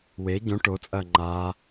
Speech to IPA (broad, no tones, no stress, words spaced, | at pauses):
we ɟõ ʈot͡sʼɐː ŋ͡ǃa